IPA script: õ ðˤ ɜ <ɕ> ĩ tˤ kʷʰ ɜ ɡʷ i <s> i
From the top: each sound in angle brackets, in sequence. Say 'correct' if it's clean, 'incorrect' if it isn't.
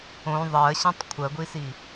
correct, correct

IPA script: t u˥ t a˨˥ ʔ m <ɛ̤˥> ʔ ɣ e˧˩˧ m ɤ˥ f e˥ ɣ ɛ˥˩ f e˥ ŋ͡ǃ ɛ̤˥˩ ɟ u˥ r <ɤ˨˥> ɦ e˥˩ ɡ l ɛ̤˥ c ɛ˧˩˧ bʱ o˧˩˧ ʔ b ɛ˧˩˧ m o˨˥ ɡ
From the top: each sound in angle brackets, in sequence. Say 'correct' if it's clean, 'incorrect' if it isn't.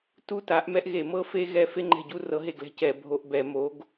incorrect, correct

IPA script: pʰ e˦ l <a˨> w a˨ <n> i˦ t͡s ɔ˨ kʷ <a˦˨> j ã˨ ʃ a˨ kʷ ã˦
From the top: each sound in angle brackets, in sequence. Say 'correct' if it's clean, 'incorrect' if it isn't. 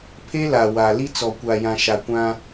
correct, incorrect, incorrect

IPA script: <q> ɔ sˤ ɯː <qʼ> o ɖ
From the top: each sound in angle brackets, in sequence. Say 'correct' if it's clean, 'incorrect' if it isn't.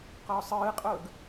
correct, correct

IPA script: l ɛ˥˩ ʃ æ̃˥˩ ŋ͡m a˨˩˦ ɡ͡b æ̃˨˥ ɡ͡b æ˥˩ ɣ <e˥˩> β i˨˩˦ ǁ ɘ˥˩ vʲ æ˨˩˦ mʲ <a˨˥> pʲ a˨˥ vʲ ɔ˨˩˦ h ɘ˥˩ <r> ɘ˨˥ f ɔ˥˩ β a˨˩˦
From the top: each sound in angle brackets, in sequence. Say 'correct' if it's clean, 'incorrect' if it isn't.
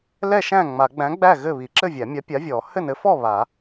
incorrect, correct, incorrect

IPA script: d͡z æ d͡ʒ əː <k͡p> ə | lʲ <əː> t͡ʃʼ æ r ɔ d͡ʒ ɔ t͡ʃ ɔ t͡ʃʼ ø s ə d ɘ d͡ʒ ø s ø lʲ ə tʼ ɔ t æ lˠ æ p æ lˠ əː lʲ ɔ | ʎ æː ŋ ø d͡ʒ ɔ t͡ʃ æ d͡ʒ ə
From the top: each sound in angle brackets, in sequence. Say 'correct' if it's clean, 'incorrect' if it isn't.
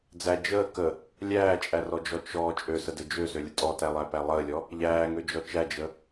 incorrect, incorrect

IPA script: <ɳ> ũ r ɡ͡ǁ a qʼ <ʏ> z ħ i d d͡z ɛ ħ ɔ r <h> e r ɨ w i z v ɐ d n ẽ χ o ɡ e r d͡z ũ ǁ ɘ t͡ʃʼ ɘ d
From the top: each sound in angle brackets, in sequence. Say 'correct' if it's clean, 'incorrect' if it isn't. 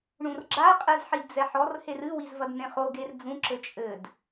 correct, incorrect, correct

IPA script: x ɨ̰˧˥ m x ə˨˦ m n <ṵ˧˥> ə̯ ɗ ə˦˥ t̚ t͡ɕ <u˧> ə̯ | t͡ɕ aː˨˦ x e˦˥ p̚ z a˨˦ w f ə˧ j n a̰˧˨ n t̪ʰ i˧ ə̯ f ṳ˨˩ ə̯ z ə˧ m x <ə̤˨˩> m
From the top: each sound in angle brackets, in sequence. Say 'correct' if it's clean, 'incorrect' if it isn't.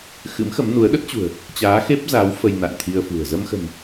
incorrect, incorrect, correct

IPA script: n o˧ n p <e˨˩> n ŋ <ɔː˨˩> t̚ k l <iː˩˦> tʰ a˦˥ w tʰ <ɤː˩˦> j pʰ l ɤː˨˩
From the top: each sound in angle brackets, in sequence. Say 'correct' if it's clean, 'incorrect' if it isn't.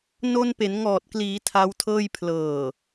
incorrect, correct, correct, incorrect

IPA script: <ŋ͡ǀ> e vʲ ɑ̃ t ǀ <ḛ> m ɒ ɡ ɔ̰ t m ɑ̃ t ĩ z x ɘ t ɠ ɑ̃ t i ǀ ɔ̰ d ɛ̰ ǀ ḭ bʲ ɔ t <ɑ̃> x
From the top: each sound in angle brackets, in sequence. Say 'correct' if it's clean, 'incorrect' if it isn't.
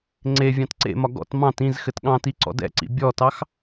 correct, correct, incorrect

